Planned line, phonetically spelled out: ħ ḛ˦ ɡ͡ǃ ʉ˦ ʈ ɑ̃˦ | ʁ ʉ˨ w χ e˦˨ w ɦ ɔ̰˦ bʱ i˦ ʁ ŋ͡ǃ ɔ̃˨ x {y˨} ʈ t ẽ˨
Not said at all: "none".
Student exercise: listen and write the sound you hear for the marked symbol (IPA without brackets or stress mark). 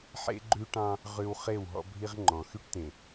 y˦